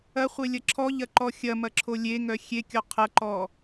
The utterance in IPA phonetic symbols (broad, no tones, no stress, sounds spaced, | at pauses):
ɐ χʷ e lʲ ɐ ǁʰ ɔ ʎ ɐ ǃ ɔ xʲ ɐ m ɐ ǁʰ o lʲ e ŋ œ xʲ e kʲ ɔ qʰ ɐ ǃ ɔ